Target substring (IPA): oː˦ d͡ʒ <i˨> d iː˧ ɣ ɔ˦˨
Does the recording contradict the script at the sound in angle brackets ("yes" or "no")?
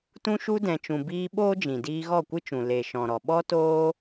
yes